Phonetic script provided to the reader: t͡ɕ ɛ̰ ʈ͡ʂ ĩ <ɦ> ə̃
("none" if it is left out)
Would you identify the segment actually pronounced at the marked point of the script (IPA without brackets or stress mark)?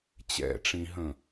ɦ